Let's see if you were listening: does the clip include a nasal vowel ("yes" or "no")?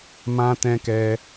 yes